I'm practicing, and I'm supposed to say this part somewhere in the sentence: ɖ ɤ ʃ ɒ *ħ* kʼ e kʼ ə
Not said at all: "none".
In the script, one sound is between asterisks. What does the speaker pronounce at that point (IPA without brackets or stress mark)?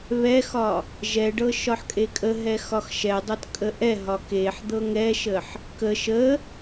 ħ